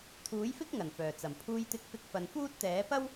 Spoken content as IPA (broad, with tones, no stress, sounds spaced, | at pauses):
t̪ʰ uː˨˥ j f ɪ˥ k̚ ŋ ɐ˨˩ n f œː˨˩ t͡s ɐ˨˩ m pʰ uː˧ j t̪ ɪ˧ k̚ f ɪ˧ k̚ f ɐ˨ n f uː˥ t̚ t̪ ɛː˨˥ p ɐ˥ w